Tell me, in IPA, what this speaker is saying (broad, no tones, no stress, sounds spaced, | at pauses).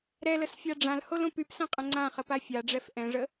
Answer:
ɾ ɛ l ə s fʲ a ɖ͡ʐ ã l h o l õ p y p s ɛ̃ qʼ ə̃ ŋ͡ǀ ã χ ə p a fʲ a ɖ͡ʐ ɛ f ʔ ɛ̃ ʐ ə